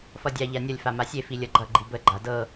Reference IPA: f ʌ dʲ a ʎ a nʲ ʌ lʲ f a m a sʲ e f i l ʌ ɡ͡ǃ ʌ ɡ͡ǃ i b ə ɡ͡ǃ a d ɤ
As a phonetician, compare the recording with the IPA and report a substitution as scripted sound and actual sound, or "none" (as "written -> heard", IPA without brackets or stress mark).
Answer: l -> lʲ